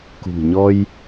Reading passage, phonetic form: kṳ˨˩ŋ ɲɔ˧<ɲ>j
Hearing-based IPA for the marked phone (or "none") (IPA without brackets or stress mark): none